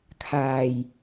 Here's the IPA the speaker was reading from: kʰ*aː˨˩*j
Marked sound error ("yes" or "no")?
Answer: no